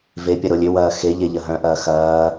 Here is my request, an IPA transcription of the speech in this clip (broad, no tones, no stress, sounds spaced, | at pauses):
v e pʲ ɐ ɾ o lʲ ʏ w ɐː x e ʎ e ʎ ɐ ɦ œ̃ ʔ ɐː x ɐː